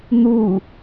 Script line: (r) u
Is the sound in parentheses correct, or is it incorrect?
incorrect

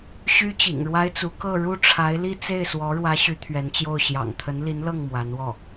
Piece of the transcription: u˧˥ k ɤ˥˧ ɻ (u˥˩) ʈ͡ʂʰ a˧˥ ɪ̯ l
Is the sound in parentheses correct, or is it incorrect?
correct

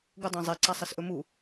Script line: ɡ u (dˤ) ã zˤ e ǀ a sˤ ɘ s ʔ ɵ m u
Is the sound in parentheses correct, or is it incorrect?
correct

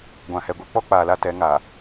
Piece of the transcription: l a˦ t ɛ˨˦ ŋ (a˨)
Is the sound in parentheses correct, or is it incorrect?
correct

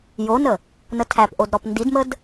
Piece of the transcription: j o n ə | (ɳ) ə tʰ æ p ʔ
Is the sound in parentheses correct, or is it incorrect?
incorrect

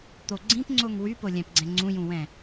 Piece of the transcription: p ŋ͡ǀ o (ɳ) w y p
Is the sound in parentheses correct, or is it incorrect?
incorrect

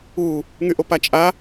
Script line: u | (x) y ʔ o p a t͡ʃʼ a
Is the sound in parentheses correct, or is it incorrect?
incorrect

